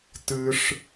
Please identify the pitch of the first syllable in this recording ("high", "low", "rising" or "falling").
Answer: high